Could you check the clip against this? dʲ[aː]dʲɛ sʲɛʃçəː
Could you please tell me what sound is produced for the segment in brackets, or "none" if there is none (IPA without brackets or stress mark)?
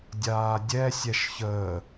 aː